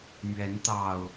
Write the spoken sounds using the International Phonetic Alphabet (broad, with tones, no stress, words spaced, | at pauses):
mɥɛ˨˦nt̪ɑ˨˩ʊ̯